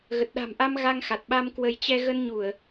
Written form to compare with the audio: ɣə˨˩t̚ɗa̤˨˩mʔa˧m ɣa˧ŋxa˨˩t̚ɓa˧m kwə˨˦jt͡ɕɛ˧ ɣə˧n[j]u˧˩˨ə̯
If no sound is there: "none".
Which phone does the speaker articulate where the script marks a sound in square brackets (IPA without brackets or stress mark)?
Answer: ɲ